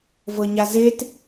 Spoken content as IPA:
v ɤ ɲ a z e t

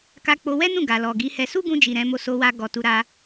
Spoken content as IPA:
k a˧ k͡p o˧ w ɛ˦ n ũ˦˨ ɡ a˨ l ɔ˨ ɡ i˨˦ h ɛ˧ s u˦ ɡ ũ˧ d͡ʒ i˨ ɾ ɛ̃˨˦ m o˦ s o˦ w a˦ ɡ ɔ˧ t u˧ ɾ a˧

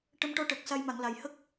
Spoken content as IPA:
ʈ ə˧ m ʈ ɔ˧ ʈ əː˨˩ k̚ s a˧ j m a˨˩˨ ŋ l a˨˩ j h ə˦˥ k̚

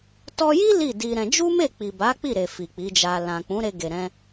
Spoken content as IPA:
t ɔ˧ j i˦ l i˦˨ d i˧ ɾ ɛ̃˧ d͡ʒ u˦ m e˦˨ k͡p i˨ b a˨˦ k͡p i˦˨ ɾ e˨ f i˨ k͡p i˨˦ d͡ʒ a˧ l ã˨ k͡p ũ˨˦ ɾ e˧ ɡ e˨ ɾ ɛ̃˧

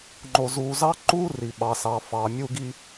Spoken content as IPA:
ŋ͡ǃ o˨ z uː˨ z ɑ˦ ǃ uː˦ r i˨ ɓ ɑ˨ s ɑ˨ f ɑ˨ mʲ u˦ ɡ i˦

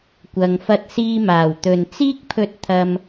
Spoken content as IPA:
kʷ ɐ˧ ŋ f ɐ˥ t̚ s iː˧ m aː˨˩ w t̪ ɵ˨ n t͡s iː˥ k̚ pʰ ɵ˧ t̚ t̪ʰ ɐ˧ m

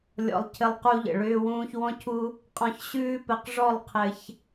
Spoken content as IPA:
lʲ ɔ̰˧ lˠ cʰ ɘ˧ lˠ q u˧ ʎ ə̰˨ ɭ ʏː˧ w ũː˧ ç w ɔ̃˦ cʰ u˦ | qʼ ɔ̃˧ ç ɕ ʉː˦ p ɘ˧ q ʐ ɔ˦˨ lˠ qʰ ɘ˧ ç

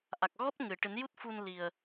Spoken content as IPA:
ʔ a˨˩ k̚ ɣ ɔ˦˥ t̚ ŋ ɨ˨˩˨ ʈ ɨ˨˩˦ n j u˦˥ t̚ f u˧ n l i˨˩ ə̯

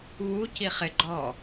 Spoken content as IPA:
β u c i χ ɪ ɡ͡ǃ ɔ

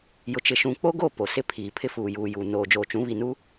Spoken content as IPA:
j ʊ˨ t͡ʃ ɪ˨ ʃ ũ˨ k͡p o˦ ɡ o˦˨ p o˨ s ɪ˦ pʰ iː˨ pʰ ɪ˦ f uː˨ j uː˨ j uː˨ n oː˨ d͡ʒ oː˨ t͡ʃ ũ˨˦ β i˨ n u˦

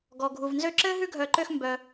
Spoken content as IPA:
ɡ ɔ˩ ɡʱ u˩ v n z ø˦ ǁ ɘː˥ ɦ ʉ˥ ɡʱ œ˨ ǃ ø˦ x m b œ˩

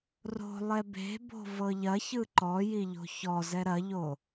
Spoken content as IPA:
r o̤ lˠ ɛ b e̤ b o̤ v ɤ ʎ ɐ ç ɯ ǃ ɔ j i ʎ o̤ ç ɔ z ɛ ɾ ɐ ʎ o

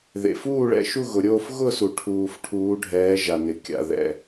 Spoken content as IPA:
ð ḛ˩ f uː˥˨ ɭ ɛ̰˩˧ ʃ u˥˨ ɣ ʊ˩ ɾʲ oː˥˨ f ɣ ʊ˥˨ s u˩ ʈʰ uː˩ f ʈʰ uː˩˧ ɖʱ ɛː˩˧ ʒ a˩ n ɪ˩ kʲ a̰˩ ð ɛ̰˩

